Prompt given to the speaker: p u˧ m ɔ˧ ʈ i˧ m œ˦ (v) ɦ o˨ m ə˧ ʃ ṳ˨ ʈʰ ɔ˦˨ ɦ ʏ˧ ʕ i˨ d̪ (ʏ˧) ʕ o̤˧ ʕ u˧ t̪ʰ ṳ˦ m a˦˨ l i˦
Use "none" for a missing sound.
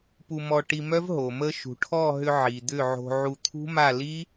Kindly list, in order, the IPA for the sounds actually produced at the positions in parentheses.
v, ʏ˦˨

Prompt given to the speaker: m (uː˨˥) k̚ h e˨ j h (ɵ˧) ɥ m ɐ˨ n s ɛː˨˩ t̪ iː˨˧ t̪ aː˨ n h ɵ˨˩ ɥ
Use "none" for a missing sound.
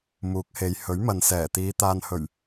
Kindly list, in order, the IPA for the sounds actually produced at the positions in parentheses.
uː˨˥, ɵ˨˥

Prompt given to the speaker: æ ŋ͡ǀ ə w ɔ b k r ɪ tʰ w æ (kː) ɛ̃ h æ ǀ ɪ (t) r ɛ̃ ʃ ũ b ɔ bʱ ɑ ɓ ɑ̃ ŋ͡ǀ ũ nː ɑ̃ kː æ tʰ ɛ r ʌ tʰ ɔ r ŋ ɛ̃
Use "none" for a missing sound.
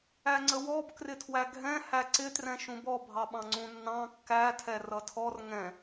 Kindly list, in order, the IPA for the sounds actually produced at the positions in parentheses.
ɡʱ, t

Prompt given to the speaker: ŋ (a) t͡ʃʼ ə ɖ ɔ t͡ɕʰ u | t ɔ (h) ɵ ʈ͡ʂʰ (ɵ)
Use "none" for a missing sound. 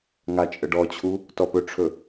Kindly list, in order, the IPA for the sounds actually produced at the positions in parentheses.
a, p, ɵ

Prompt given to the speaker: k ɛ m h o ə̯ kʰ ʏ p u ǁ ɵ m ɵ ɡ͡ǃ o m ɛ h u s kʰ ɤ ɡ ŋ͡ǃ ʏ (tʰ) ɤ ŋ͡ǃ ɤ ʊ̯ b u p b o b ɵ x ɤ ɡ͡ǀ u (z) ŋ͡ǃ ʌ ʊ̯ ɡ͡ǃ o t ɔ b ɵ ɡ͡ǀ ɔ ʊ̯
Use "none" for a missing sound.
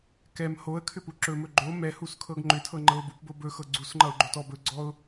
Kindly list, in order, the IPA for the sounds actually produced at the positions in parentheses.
tʰ, s

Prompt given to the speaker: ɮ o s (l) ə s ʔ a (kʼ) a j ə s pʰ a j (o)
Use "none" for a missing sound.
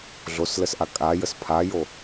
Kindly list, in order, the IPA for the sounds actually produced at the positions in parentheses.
l, kʼ, o

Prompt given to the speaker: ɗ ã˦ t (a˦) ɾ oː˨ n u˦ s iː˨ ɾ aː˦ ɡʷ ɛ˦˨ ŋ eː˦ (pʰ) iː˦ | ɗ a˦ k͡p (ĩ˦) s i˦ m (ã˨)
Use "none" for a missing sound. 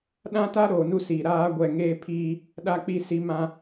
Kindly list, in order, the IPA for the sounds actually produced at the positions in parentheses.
a˦, pʰ, i˦, ã˦

